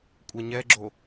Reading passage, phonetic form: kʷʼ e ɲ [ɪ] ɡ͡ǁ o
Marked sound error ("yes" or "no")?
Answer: yes